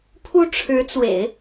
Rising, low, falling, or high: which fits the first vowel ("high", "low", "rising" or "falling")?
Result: high